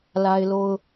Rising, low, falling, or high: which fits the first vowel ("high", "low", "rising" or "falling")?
high